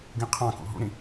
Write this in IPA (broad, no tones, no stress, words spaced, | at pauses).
ɡĩqʰɑ̃kṵ ɦṵɾĩ